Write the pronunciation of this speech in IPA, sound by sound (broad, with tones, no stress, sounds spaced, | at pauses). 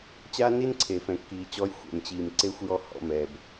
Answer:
t͡ɕ aː˦ n i˦ n ǀʰ e˨ f ɛ̃˨ kː iː˨ t͡ɕ ɔ˧ j xʷ ɛ̰˨ m t͡ɕ iː˨ m ǀ e˧ xʷ j ɔ˧ h ɔ̰˧ m ɛː˨ b